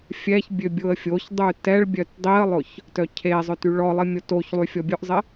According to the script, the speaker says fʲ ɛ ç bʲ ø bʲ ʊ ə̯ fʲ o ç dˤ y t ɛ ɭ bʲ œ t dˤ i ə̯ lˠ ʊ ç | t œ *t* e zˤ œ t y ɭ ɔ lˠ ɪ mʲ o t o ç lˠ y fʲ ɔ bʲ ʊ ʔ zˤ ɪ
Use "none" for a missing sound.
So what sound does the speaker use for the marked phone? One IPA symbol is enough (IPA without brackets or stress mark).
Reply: cʰ